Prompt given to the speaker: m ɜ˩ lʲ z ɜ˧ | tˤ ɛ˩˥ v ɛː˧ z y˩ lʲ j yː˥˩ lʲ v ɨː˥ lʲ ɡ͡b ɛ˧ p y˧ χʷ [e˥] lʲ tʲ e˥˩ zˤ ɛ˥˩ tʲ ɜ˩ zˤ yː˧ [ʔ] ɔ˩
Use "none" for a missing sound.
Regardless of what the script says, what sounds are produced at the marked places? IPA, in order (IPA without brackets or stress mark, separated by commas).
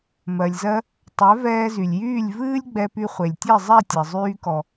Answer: e˩, k